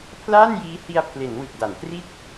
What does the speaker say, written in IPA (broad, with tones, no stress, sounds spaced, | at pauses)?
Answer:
pʰ l aː˥˩ n j iː˦˥ h i˧ a̯ pʰ l e˩˦ n w ɯ˨˩ k̚ d a˩˦ n t r i˥˩ t̚